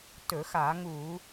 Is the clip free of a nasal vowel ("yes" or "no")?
yes